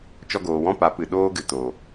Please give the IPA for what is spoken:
t͡ʃ ɔ˧ ɡ oː˨ w ɔ̃˦ p a˨˦ p ɨ˨ ɗ oː˦ ɡ ɨ˨ t oː˨

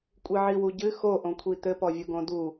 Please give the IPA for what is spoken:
kʷʼ i ʕ i w u ɟ ɨ x o ʔ õ kʷʰ i t̪ ɘ p ɔ vʲ u ɡ õ d u

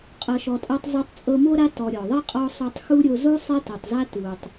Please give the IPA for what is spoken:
qʼ ɤ˨ ʃ ɔ˨ tʼ a˦ tˤ zˤ a˦ tˤ t͡sʼ ɤ˦ m o˥ ɾ a˥ t ɔ˨ ɾʲ ɔ˩ ðˤ e˥ qʼ ɔ˦ sˤ o˦ tˤ x u˥ ɾʲ o˦ z o˦ sˤ ɛ˥ t ɤ˨ tˤ z a˥ t u˨ tˤ

